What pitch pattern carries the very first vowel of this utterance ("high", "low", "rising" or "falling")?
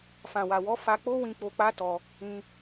low